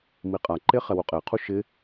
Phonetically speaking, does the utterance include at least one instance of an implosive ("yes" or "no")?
no